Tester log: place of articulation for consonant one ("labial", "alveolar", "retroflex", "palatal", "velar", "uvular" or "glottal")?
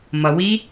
labial